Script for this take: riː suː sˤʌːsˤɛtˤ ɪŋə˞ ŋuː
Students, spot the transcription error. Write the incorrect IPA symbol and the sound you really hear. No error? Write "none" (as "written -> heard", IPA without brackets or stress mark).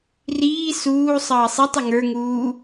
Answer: none